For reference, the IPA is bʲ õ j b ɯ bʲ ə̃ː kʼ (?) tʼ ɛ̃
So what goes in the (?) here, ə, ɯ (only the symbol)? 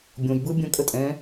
ə